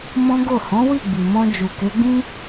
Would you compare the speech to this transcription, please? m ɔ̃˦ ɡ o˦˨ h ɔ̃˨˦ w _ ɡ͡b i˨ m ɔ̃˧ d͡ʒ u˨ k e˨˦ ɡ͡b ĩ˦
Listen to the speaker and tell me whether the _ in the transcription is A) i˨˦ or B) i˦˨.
B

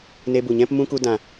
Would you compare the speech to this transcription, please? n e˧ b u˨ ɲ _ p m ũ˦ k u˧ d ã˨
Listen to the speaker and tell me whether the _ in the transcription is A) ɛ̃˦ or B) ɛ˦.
A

